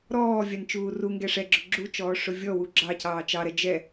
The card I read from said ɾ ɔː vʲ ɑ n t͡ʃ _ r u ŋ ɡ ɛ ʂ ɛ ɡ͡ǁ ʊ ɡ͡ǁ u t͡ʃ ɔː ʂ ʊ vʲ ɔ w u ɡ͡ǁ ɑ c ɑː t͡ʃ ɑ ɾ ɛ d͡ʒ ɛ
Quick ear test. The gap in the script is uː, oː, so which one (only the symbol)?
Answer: uː